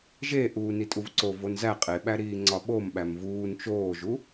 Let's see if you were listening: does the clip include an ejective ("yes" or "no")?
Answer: yes